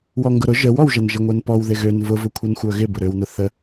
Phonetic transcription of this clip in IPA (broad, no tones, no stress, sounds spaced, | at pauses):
w ɔ ŋ ɡ ʊ ɾ ʊ ʒ ə w ɔ w ʒ ɐ n ʒ ɪ ŋʷ ɛ n p ɔ w ð ɪ ɣ ø n v ʊ v ʊ kʷʰ ɛ n xʷ œ ɣ ɪ b ʊ ɾ ø w n ʊ θ ə